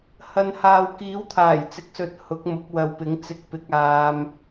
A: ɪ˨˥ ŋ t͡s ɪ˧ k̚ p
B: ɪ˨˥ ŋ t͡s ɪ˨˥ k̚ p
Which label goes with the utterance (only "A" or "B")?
A